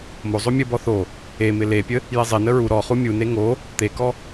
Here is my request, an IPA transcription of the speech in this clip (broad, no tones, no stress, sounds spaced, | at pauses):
m o zˤ o mʲ ə b ɔ θ o | e m ɪ l e pʲ ə | j e zˤ ɪ n ə ɹ u ɾ ɔ χ u mʲ u n e ŋ o | t̪ e k ɔ